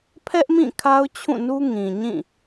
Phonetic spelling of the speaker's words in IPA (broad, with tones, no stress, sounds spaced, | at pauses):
pʰ ɛ˦ ʔ m ĩ˦˨ kʰ a˦ ʊ̯ t͡ɕʰ ũ˦˨ n u˦ ŋ ĩ˨ ɲ ĩ˦˨